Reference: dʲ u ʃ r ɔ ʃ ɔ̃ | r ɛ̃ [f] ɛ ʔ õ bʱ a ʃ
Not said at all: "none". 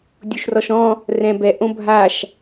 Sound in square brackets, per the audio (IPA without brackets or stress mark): b